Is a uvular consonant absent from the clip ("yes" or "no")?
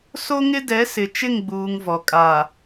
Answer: yes